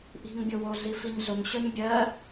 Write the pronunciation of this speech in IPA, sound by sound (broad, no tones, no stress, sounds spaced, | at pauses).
ʔ i̤ ŋ bʲ o w o ɮ i f i ɲ ɮ ʊ ŋ ɕ œ ɲ bʲ ɜ